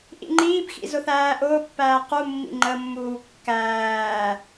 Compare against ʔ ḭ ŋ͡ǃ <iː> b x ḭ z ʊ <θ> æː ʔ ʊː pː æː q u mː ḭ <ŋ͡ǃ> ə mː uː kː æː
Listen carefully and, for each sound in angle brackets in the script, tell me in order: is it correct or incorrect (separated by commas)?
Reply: correct, correct, correct